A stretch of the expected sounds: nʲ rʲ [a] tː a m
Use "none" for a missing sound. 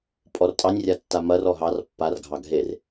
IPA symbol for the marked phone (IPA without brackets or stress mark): a